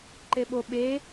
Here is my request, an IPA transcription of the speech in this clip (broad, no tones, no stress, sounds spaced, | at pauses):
ǃ e ɓ o ɓ e